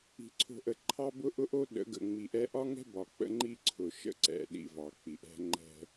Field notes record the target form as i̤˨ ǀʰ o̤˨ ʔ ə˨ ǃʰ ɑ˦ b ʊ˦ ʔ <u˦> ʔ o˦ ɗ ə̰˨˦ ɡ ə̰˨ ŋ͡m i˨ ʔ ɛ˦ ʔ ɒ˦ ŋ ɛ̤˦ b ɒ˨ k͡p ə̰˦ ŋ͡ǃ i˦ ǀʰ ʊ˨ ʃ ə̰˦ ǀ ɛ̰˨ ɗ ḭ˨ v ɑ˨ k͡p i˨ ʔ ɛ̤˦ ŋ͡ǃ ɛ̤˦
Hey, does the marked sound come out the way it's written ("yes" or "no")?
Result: no